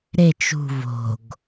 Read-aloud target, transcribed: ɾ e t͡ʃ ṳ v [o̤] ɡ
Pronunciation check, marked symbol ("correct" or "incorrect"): correct